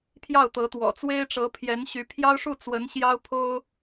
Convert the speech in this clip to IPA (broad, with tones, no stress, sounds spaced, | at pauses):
pʰ j ɑ˥˩ ʊ̯ t̪ ɤ˧˥ t̪ w ɔ̰˨˩ t͡s w e˥ ɪ̯ ʈ͡ʂ ɤ˧˥ pʰ j ɛ˧˥ n ɕ y˧˥ pʰ j ɑ˥ ʊ̯ ʂ u˥˩ t͡s w ə˧˥ n ɕ j ɑ˥ ʊ̯ pʰ o˥ ʊ̯